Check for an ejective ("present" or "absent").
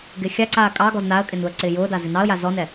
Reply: present